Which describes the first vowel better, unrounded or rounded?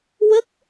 unrounded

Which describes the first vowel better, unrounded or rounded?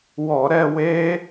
rounded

